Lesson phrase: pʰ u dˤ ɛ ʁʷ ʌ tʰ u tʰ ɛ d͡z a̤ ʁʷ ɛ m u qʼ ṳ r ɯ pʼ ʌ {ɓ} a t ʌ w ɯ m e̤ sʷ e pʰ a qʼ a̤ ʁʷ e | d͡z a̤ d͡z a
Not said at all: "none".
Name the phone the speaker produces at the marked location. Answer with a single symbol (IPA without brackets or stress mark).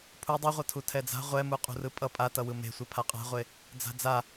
pʼ